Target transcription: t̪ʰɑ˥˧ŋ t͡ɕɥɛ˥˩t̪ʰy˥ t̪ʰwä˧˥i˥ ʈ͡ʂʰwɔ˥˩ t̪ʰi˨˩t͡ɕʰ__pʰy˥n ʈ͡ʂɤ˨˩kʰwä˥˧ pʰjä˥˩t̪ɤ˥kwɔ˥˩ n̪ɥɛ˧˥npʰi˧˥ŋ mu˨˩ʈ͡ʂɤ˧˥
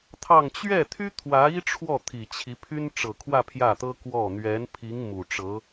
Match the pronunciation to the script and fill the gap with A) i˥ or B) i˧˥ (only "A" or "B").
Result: B